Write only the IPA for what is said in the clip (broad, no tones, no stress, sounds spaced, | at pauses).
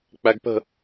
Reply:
k͡p æ ɡ p ə̤